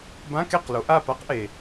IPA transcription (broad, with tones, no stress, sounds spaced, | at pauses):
b ã˧˥˧ k e˥˨ q l o˨˦ ʔ a˥˨ p a˥ q ʔ e˩